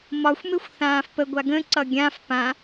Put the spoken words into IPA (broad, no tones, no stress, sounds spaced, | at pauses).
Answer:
m ɒ xʷ m e xʷ θ ãː f p ə ɡʷ a ɡ ə̃ ǀ ʌ ɡʲ ã f p ã